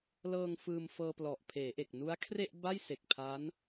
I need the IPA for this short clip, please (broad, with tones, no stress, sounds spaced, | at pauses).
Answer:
l ɤː˧ ŋ f ɯː˧ m f ɤː˧ p l ɔ˨˩ ʔ pʰ eː˩˦ ʔ e˨˩ k̚ n u˦˥ a̯ kʰ r e˥˩ ʔ b a˥˩ j s e˨˩ k̚ pʰ a˦˥ n